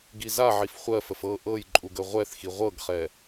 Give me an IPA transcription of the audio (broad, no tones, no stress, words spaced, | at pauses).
ɡizaʕif χʷɜfəf ɤ ʔɤj ǃʼuɡəʁʷɛθxi ʁʷɤɡχɛ